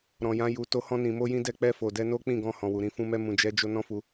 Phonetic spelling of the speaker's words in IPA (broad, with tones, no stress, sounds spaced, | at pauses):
ɾ ɔ̃˨ j ã˨˦ j u˧ t o˧ h ɔ̃˧ n ĩ˨ m o˧ j ĩ˧ d ɛ˧ k͡p ɛ˧ f o˨ d ɛ˧ n o˦ k͡p ĩ˦˨ ɡ ɔ̃˧ h ɔ̃˨ w u˨ ɾ ĩ˨˦ f ũ˧ m ɛ˧ m ũ˨ d͡ʒ ɛ˨˦ d͡ʒ o˧ n ɔ̃˦ f u˧